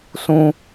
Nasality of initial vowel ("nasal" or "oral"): nasal